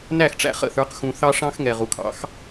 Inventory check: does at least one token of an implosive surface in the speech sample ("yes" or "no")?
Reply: no